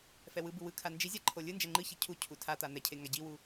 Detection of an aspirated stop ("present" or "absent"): present